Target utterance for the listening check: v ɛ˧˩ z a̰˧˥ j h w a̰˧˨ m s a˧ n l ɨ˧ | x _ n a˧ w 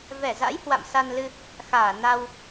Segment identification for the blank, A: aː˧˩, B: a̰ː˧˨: A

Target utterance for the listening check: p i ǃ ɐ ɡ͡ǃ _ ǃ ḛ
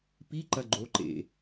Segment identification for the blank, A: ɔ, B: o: B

